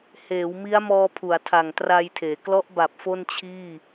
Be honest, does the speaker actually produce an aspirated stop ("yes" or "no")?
yes